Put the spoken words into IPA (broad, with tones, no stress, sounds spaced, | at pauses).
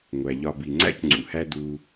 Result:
ŋʷ æ˩ ʎ ɒ˨ b i˩ ŋ͡ǀ æ̰˥ c ŋ͡ǀ ṵ˩ h æ˥ d u˨